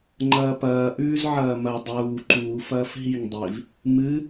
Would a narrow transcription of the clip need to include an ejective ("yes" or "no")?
no